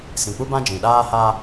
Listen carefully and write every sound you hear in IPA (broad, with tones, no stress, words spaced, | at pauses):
sĩ˨k͡pu˦bã˦ d͡ʒĩ˨ɗaː˦ha˦